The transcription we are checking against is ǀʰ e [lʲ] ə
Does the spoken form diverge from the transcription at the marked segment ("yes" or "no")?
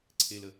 yes